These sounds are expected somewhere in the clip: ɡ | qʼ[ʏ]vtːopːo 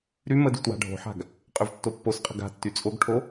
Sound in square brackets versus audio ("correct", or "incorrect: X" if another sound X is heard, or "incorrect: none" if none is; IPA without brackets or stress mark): correct